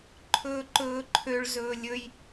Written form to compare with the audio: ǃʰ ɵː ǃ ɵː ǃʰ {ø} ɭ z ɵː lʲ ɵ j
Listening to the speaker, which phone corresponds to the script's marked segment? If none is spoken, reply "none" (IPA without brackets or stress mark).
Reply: ø